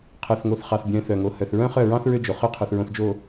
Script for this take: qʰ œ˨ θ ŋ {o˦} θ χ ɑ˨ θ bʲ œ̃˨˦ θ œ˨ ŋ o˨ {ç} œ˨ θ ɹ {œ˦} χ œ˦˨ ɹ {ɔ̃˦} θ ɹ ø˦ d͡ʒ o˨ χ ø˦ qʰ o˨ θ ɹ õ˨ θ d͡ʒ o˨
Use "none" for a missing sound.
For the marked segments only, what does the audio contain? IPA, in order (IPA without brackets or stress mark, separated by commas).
o˨, h, œ̃˦, ɑ̃˦